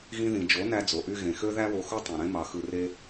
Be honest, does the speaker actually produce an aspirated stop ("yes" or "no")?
no